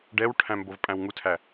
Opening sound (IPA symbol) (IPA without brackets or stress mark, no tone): ɖ